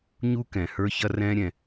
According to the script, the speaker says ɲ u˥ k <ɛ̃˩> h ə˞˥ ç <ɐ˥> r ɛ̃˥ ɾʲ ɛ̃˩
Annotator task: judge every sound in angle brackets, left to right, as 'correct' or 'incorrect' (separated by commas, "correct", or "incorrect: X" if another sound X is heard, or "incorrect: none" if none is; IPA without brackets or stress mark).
correct, correct